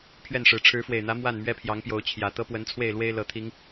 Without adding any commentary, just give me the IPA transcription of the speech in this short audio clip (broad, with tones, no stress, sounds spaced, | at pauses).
pʰ ɥ ɛ˥˨ n ʂ ɻ̩˨˦ ʈ͡ʂʰ ɻ̩˨˦ f w e˨˩ ɪ̯ n̪ ä˨˦ m w a˥˨ n m ɥ ɛ˦ pʰ j ɑ˨˦ ŋ p j o˨˦ ʊ̯ t͡ɕʰ j ä˨˩ t̪ ɤ˦ p w ə˨˦ n t͡sʰ w e˥˨ ɪ̯ l w e˦ ɪ̯ l ɤ˨˩ t̪ʰ i˨˦ ŋ